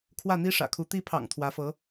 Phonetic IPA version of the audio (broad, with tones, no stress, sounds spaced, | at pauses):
kʰ w ä˥˩ n̪ i˥ ʂ ä̰˨˩ kʰ u˧˥ t̪ i˧˥ pʰ ɑ̰˨˩ ŋ t̪ʰ w ä˧˥ f ɤ˧˥